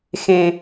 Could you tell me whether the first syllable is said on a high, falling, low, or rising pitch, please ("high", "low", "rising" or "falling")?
low